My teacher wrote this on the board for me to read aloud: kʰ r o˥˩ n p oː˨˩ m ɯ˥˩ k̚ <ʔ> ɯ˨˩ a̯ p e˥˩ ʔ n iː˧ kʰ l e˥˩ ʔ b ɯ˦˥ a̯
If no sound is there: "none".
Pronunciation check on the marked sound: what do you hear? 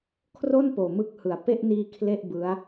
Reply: h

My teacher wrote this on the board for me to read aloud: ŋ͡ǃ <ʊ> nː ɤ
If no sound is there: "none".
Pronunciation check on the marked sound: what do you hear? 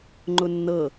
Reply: ʊ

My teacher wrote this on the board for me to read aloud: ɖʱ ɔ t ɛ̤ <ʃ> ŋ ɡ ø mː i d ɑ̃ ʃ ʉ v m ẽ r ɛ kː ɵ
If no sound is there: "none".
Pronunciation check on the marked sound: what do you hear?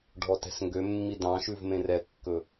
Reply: s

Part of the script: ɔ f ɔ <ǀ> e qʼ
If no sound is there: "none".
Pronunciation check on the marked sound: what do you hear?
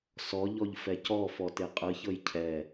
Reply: t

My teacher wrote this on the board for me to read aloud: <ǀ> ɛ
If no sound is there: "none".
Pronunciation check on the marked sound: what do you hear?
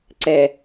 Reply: ǀ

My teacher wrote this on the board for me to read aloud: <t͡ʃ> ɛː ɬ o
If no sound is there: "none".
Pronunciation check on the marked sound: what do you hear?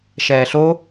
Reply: ʃ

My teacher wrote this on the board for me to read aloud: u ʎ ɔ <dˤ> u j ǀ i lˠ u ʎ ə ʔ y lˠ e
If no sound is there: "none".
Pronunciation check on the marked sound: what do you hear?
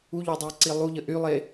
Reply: dˤ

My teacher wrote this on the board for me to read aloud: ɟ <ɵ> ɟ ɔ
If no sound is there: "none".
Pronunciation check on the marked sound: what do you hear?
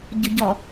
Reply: ʊ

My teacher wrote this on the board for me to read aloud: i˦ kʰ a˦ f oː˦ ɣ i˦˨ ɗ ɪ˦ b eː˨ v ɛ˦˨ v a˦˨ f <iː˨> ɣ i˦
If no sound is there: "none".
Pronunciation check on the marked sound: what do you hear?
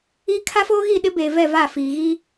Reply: iː˨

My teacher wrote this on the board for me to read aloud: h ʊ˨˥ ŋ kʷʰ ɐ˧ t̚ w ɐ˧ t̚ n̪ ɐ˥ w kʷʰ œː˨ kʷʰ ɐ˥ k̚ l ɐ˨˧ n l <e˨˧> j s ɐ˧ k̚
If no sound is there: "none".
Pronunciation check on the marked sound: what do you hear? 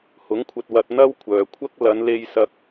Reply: e˧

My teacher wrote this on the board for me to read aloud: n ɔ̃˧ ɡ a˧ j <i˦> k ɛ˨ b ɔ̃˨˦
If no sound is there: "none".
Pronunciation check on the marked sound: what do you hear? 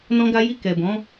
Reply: i˧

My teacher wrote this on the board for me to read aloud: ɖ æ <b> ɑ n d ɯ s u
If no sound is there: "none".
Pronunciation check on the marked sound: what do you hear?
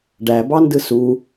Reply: b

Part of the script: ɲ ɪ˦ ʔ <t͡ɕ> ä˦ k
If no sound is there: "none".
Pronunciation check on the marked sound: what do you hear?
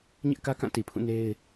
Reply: k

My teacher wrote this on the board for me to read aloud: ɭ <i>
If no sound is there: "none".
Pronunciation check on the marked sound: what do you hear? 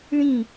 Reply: ĩ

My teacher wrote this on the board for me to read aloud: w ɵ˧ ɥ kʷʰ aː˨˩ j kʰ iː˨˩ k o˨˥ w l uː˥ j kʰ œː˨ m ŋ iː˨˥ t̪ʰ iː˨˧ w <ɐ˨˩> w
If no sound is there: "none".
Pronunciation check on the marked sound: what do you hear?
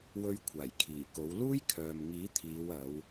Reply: ɐ˨˧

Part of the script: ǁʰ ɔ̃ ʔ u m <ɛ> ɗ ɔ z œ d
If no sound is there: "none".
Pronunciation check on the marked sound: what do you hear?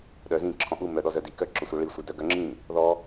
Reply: œ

